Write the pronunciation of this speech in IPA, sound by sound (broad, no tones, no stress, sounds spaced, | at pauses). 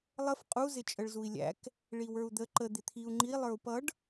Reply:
lˠ ə f qʼ u z ɪ t͡ʃʼ ə ɭ z u i̯ lʲ æ̰ k | ɭ i w ə˞ u̯ d̪ ə ǃ ə d̪ ɪ t̪ʰ i u̯ ŋ͡ǃ i lˠ ə˞ u̯ p ʌ ɖ